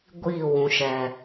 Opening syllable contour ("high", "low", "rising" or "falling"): falling